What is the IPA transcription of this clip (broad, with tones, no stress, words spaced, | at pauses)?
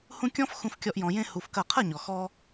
hũ˦ kʲɔ̃˦f xũ˧fkʲɔ˧ʔ jɔ̃˧jẽ˦ hu˧fkɐ˦˨ qʰɐ˦˨ɲɔ˨ xɔ˦